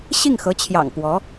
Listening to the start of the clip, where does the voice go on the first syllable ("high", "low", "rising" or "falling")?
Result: falling